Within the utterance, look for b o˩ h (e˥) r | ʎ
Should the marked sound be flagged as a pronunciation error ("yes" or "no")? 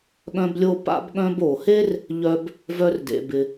no